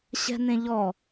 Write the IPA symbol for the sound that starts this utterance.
ɕ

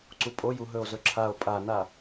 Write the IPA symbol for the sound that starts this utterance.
ǀ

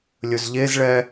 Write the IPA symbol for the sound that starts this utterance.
lʲ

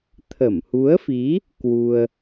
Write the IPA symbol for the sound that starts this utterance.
t̪ʰ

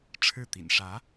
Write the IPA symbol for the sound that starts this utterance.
ʈ͡ʂʰ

